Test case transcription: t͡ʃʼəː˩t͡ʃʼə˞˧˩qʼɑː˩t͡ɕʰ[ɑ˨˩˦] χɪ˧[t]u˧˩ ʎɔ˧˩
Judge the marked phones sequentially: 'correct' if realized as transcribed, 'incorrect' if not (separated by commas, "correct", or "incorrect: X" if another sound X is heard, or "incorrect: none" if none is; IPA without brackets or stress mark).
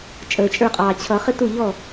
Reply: incorrect: ʌ˨˩˦, correct